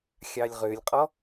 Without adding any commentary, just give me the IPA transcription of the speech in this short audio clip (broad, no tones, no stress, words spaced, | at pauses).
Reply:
xʲɑlʲʁølʲqʼɔ